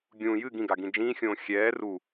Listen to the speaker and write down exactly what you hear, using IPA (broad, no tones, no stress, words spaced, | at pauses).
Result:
ɡʲũ jɨ ɡĩɡaɡĩ d͡ʒĩːxʲõː xʲɛː ru